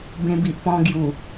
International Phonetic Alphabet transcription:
bẽ˧bi˨ʔpɔ̃˧ ɡju˨˩

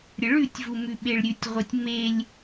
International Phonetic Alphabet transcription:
ɾʲəɭʉtʲvu mʉɓeɭɾʲʉtʲʁʷetʲ melʲ

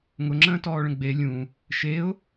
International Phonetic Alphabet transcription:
ŋʊŋ͡ǁə̃ːtɔːɭə̃ ɡ͡be lʲũ | ʃeʊ̯

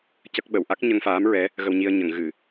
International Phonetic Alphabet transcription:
cə˦˥k̚ɓə˨˩˨w ʔa˦˥k̚ɲə˧ŋfaː˧˥mɹɛ˧˥ | ɣə˧wɲi˧ə̯ ɲə˨˩˨ŋɣɨ˨˩˨

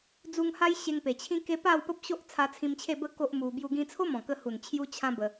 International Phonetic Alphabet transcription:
d͡zu˧ŋha˦jɕe˧ŋ pe˨˩t͡ɕʰĩ˦ke˦ pa˥˧wpə˦p̚ɕo˦ʔ t͡sʰa˧t͡sʰĩ˧mt͡ɕʰe˥˧bə˥˧ ko˦ʔmu˧ bju˧ɡĩ˧t͡sʰo˦ mɔ̃˨˩kə˧hu˨˩n t͡ɕʰju˦t͡ɕʰã˦ bə˧

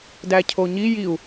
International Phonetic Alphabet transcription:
dæcʰoɲi jiu̯

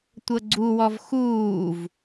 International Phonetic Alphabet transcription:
tʷɤɡ͡ǀuwɔv xuːv

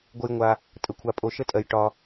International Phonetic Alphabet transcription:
ɡʷə˦jŋʷa˦ | tʼə˧kʷʰa˧ pʼo˧ʃə˦tʼɜ˧j ʈɒ˧

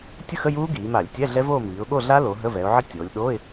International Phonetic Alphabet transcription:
tʲə˦˥xə˧˥˧ juː˦˥ɡiː˩˧ma˧˩˧lʲtʲɛ˧˥˧ ɮɛ˦˥voː˥˧ miː˩˧ʊ̯ɠo˥˧ ɮa˦˥lo˩˧ ɦə˧˥˧vɛ˩˧ʊ̯ ʕə˦˥ tʲoː˩˧lʲɗoː˧˥˧ɪ̯

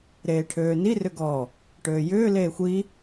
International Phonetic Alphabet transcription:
ɾeːʈʰøːni rʏɡɔ | ʈøːjʏː leːxʷi

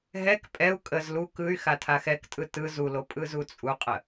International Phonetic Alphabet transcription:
ɦɛk pʼɛu̯ kʼəz lu kɯy̯ xatʰaxɛktʼɯ tɯ zulo pʼɯzut͡sʼuqʼə

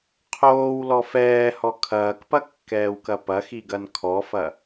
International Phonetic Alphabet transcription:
qʰoːwlɔ fɛːhɔ kʰɐːkpɐkːɛːwkɐ pɐxiɡɐn kʰɔfɐ

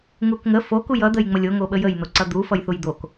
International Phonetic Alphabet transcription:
ŋukŋə fokuj ʌd̪əj ŋ͡məlʲoŋoɓə jəjn̪oǀʌ d̪ufʌj θujd̪ok

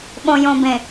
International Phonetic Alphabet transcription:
ɓõ˨jõ˨bẽ˨

